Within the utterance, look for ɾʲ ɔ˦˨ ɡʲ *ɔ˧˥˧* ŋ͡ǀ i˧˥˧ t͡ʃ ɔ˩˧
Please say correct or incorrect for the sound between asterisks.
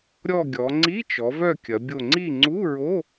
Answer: incorrect